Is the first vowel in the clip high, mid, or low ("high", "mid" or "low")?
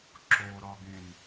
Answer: mid